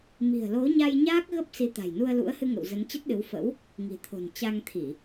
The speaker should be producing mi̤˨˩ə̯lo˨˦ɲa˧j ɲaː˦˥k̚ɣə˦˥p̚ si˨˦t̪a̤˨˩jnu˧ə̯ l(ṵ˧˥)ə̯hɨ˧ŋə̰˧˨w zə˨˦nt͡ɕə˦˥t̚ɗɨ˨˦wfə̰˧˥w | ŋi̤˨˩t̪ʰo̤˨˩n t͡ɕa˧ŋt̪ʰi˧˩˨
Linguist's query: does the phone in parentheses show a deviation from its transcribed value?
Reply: no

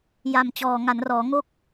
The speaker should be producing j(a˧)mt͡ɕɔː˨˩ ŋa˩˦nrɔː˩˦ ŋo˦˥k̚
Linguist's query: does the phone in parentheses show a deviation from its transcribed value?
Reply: yes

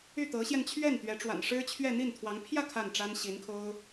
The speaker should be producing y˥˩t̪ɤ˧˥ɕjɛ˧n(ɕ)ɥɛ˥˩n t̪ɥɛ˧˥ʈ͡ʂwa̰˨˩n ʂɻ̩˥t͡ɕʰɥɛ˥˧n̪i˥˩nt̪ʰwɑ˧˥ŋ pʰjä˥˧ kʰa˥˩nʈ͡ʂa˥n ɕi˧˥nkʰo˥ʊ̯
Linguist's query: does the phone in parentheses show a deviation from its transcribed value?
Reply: yes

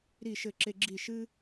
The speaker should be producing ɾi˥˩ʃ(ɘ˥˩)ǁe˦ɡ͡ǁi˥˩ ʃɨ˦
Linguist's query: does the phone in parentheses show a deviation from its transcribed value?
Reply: no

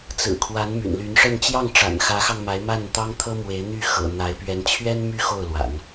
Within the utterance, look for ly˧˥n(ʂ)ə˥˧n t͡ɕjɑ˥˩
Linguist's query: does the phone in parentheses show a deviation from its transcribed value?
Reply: no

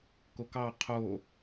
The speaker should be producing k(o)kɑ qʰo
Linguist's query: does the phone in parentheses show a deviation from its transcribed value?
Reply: no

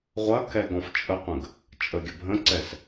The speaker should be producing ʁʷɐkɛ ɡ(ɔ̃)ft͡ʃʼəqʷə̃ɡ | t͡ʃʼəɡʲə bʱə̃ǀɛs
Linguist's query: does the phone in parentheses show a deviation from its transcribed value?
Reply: no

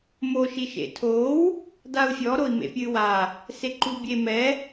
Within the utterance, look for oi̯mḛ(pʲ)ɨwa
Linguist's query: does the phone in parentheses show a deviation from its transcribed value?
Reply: no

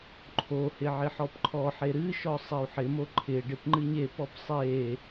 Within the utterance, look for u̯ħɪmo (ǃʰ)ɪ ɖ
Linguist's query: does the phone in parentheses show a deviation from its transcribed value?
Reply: no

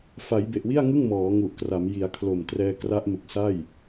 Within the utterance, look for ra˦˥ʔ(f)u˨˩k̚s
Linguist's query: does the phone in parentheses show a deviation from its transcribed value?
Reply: yes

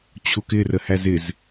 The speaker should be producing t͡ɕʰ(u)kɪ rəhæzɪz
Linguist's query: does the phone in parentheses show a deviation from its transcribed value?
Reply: no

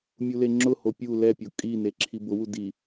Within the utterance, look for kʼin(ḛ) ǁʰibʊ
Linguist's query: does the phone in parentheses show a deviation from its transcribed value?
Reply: yes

